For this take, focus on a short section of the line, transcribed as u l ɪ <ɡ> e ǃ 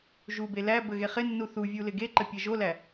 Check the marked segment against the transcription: correct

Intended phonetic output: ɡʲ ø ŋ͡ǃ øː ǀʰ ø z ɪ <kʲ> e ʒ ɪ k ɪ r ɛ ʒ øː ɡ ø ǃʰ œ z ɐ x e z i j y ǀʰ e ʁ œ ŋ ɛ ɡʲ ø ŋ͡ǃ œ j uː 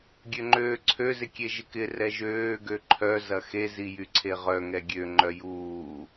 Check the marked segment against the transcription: correct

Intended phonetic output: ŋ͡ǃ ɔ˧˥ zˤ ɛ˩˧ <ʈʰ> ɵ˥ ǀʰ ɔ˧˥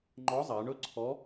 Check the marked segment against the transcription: incorrect: ɳ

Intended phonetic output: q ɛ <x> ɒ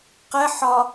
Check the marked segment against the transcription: incorrect: ħ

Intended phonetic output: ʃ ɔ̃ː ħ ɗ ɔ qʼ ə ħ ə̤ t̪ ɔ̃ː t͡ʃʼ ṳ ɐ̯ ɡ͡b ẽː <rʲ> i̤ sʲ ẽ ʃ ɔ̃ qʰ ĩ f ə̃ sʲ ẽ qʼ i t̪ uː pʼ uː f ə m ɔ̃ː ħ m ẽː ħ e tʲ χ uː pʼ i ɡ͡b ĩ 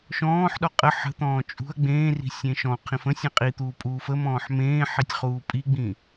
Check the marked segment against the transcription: incorrect: r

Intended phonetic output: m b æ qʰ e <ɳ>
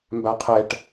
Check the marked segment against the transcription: incorrect: ʈ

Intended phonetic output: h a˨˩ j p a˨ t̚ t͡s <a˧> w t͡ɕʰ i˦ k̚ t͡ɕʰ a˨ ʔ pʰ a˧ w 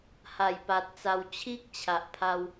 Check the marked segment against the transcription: correct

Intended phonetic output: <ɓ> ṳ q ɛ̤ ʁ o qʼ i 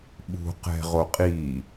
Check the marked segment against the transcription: correct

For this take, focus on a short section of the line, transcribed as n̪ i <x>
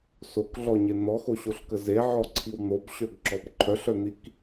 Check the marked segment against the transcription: incorrect: k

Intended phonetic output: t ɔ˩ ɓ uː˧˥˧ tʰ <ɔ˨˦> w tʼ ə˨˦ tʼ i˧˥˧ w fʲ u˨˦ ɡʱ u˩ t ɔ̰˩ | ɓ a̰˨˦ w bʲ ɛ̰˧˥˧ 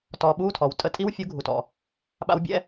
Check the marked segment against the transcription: incorrect: ɔ˩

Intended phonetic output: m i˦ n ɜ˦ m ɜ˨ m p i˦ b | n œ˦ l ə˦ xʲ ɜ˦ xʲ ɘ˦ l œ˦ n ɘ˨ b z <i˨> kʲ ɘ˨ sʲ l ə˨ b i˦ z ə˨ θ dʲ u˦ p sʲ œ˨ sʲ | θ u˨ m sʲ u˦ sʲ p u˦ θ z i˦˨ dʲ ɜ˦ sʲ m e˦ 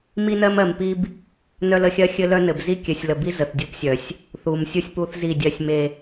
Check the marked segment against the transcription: incorrect: i˦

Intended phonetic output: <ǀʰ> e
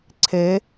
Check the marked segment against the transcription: correct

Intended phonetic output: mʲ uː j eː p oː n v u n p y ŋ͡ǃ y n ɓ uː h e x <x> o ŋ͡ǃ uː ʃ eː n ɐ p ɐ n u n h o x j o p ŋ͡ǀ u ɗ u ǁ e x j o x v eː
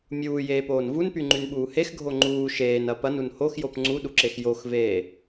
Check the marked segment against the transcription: incorrect: ɡʱ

